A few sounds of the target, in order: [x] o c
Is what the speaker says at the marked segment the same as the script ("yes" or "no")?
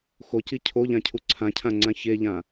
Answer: yes